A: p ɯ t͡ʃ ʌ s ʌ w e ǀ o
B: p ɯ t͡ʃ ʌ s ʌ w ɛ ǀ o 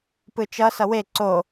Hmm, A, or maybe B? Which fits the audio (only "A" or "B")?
A